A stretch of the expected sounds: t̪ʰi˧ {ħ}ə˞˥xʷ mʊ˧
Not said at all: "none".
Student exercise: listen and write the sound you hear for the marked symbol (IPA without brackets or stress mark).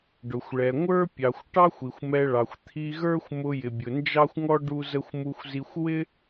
ɣ